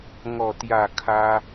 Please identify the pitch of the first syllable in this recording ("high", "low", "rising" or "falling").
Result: low